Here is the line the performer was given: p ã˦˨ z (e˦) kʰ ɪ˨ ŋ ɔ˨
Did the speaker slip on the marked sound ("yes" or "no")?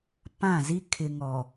yes